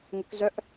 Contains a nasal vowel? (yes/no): no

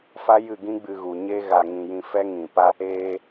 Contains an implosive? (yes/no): no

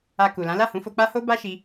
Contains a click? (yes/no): no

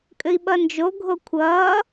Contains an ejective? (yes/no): yes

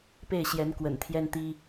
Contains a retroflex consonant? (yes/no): no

